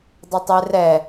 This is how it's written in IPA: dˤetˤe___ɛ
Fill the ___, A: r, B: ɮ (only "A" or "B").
A